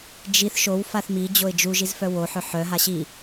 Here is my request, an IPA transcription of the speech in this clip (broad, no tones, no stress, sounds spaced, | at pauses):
d͡ʒ i θ ʃ o w f a θ m i d͡ʑ o ɪ̯ d͡ʒ u ʒ i z f œ w o ħ œ ħ œ ɦ a ɕ i